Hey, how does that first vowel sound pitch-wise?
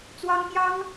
high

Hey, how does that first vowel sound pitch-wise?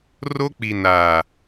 high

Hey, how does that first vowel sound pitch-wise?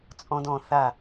high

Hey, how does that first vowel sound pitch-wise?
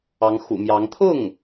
rising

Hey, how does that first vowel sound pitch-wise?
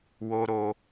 low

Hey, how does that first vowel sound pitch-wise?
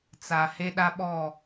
low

